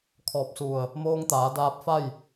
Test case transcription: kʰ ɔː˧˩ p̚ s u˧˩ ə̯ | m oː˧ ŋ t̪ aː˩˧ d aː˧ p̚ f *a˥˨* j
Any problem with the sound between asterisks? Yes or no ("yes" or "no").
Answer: no